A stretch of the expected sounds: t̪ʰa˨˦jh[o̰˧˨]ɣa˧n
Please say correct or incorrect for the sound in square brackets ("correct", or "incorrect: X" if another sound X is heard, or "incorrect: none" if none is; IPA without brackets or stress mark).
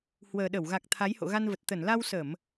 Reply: correct